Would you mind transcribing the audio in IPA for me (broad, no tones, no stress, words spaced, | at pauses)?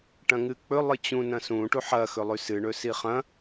ʈɐ̃ŋɨk͡pɵ lˠɨt͡ɕũ nɐ̃sũ ʈuħɐ xɵlˠʉsɨ ɳɵsiχɐ̃